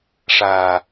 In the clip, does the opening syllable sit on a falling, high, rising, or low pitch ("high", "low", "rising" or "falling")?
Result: low